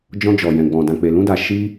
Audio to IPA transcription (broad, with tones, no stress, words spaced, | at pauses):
d͡ʒɔ̃˧d͡ʒɔ˨jɛ̃˨ɡ͡bɔ̃˨ dã˨k͡pe˨lũ˧da˨ ʃi˧